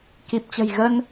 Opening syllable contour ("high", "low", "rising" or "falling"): low